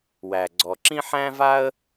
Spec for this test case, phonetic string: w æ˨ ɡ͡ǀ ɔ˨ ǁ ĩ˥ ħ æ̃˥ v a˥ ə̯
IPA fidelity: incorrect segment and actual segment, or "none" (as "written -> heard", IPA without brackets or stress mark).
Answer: none